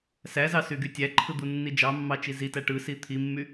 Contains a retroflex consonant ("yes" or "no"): yes